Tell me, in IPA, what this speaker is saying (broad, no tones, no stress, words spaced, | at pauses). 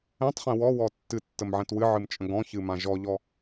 ɛ̃tˤχɛ̃ wɔwɔ tːɨtːəmʕɛ̃t wɨʕɨmt͡ʃʼə̃ ɡɔ̃çɨmã ʒɔʎɔ